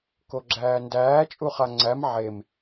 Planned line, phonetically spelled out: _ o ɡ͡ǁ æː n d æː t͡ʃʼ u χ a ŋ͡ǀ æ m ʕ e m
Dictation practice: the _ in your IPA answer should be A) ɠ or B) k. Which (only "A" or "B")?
B